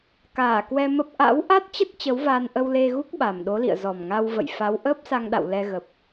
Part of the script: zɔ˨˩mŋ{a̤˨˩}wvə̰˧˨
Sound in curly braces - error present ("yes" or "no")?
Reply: yes